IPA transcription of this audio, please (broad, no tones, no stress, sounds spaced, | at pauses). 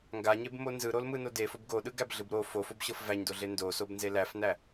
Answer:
ŋ ɡ a ɲ e b m o n z ɯ ɾ o l m ɯ n o d e f o b ɡ o ɗ ɯ ɡ æ b ɮ ɯ b ɾ o f o f o b ɕ ɤ f v æ ɲ d o ɮ e n d o s o b n z e l æ f n æ